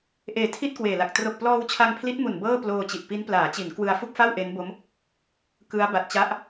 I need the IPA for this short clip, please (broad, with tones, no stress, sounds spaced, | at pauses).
ʔ eː˨˩ tʰ i˥˩ t̚ k w eː˨˩ l a˨˩ k̚ t r o˨˩ k̚ p l ɔː˧ w t͡ɕʰ a˧ ŋ pʰ l i˦˥ t̚ m u˨˩ n b ɤː˥˩ p l oː˧ t͡ɕ i˨˩ ʔ p i˦˥ n p l aː˩˦ t͡ɕ i˩˦ n k w ɯ˧ a̯ f u˥˩ k̚ f a˥˩ w ʔ e˦˥ n b o˦˥ m | k ɯ˦˥ a̯ b a˨˩ t̚ t͡ɕ a˦˥ ʔ